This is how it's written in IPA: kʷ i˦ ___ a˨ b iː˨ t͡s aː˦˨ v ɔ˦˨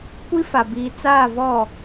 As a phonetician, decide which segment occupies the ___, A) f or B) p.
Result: A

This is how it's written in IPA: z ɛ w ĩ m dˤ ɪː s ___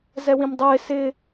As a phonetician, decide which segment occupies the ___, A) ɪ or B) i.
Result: A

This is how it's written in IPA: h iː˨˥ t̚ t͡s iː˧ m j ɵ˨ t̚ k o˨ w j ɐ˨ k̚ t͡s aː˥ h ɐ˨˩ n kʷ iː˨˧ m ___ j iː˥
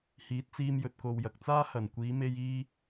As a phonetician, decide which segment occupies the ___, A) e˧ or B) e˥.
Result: A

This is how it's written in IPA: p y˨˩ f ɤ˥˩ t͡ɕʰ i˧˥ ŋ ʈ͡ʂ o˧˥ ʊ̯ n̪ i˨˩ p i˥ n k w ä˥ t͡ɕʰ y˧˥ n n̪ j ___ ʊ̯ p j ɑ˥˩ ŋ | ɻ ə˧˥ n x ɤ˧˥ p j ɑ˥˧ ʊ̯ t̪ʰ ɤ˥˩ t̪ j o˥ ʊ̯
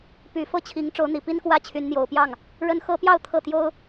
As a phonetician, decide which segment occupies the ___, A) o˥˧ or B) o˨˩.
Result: B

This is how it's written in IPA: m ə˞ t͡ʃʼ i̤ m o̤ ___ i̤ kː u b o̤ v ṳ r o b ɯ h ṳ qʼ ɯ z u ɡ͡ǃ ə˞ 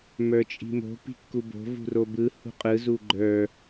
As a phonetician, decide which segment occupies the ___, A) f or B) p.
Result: B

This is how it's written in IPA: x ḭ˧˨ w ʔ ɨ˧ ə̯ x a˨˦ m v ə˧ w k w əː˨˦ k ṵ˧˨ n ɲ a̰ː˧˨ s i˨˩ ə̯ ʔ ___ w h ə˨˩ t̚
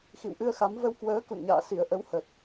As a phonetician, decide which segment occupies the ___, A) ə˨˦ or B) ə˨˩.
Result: A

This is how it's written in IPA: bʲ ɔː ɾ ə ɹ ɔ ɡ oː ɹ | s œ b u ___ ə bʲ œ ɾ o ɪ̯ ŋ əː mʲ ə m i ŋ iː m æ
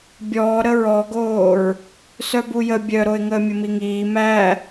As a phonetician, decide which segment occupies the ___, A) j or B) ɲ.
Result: A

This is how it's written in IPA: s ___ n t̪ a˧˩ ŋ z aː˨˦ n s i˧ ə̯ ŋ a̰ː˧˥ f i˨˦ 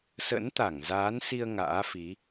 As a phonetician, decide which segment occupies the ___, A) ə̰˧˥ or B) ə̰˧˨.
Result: A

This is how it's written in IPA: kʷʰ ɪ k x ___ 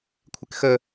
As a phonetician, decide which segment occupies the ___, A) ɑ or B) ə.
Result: B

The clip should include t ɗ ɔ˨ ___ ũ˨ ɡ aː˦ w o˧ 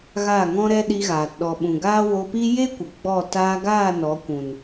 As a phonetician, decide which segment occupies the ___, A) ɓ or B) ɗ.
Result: A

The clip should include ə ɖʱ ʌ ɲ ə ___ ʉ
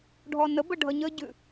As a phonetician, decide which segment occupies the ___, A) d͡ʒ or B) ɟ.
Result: B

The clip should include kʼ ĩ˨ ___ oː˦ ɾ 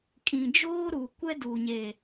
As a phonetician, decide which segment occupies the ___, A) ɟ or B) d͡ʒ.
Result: B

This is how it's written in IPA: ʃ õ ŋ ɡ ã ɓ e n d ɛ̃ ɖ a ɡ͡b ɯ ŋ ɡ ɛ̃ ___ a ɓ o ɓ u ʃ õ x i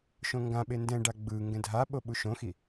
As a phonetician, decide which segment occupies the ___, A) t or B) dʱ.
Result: B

